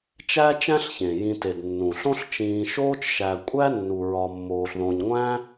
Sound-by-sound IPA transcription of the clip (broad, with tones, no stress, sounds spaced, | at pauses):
t͡ʃ æ˥ t͡ʃ æ̃˦ ɬ ç ẽ˩ j ĩ˨ t e˩ d nː ũ˩ ɬ õ˦ ɬ t͡ʃ ĩː˨ ʃ oː˦ t͡ʃ ʃ æ˨ kʷʼ æ˥ nː u˨ ɹ ɒ˨ mː oː˨ ɬ ð õ˨ ɲ ŋʷ æ̃˥